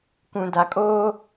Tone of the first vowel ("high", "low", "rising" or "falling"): low